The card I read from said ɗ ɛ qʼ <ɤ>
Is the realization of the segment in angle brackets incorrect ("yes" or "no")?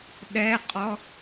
yes